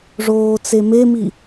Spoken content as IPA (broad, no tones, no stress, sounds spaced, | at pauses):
ʐ oː t͡s e m e m i